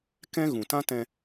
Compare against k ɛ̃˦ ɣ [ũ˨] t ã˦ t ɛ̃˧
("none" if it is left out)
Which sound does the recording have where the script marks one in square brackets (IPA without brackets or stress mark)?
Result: ũ˨